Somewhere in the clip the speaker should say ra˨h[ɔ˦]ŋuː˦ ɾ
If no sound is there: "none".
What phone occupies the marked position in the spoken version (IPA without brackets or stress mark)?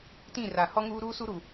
ɔ˦